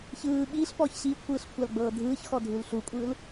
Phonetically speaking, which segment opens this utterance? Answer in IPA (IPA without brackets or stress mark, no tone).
ç